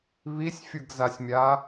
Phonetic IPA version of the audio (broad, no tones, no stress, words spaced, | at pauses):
βisʲfʲɯɡzasʲmʲa